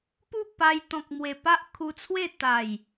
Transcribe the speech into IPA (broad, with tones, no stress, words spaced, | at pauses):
pu˥˧pa˧j t̪ɔ̃˨k̚mwe˨˩ pa˦ʔkʰu˧t͡sʰwe˥˧ t̪a˨˩j